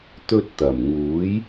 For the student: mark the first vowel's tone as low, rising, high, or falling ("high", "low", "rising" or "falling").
high